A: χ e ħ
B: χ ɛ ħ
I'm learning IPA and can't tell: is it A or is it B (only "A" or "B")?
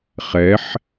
B